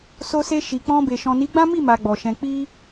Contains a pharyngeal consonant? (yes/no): no